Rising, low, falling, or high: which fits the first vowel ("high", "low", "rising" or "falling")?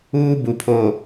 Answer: high